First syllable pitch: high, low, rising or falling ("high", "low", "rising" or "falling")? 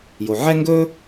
low